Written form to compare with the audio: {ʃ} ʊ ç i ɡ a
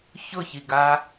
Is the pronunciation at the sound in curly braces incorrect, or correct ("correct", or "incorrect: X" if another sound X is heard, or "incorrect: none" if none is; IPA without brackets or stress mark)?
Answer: incorrect: ç